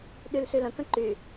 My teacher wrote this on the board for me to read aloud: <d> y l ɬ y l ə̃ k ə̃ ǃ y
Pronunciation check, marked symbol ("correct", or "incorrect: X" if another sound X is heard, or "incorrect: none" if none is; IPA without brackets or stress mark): incorrect: ɗ